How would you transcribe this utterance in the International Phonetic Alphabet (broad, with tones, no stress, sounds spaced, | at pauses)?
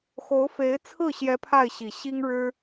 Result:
x o˧˥ ʊ̯ f e˧˥ ɪ̯ t͡sʰ ɹ̩˥˩ ɕ j ɛ˧˥ pʰ a˥˩ ɪ̯ ɕ i˨˩ ɕ i˥ ŋ ɻ ɻ̩˥